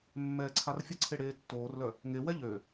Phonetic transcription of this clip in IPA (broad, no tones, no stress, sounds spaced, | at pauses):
mː ɛː ǀʰ a r fʲ ə ǀʰ e ɽ eː tː oː r l œ | ŋ e w ɛ ʎ ø